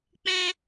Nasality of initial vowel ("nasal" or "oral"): nasal